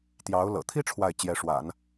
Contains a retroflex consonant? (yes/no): yes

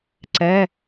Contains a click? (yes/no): yes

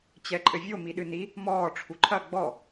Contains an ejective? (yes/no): yes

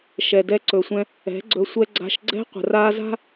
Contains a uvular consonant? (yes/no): yes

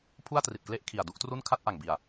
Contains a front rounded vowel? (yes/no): no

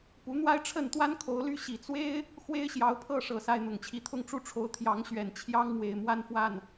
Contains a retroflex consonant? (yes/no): yes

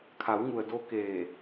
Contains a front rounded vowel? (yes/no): no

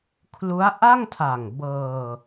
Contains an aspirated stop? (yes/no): yes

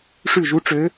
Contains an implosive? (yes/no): no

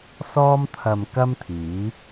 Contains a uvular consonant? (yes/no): no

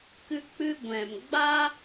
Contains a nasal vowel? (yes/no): yes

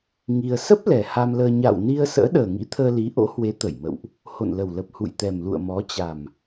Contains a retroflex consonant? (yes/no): no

